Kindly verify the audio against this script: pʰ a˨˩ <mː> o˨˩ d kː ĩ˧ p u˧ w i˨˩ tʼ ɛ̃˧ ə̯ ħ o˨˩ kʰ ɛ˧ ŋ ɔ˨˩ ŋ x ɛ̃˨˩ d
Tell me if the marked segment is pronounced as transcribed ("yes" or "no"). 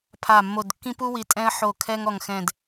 yes